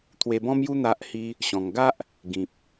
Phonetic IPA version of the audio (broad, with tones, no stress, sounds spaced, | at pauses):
t̪ʰ w e˧ b ɔ̃˦ m j u˦ n̪ a˦ ʔ h i˦ | ɕ ɔ̃˧ ŋ ɡ a˦ ʔ | ɡ ĩ˨ p̚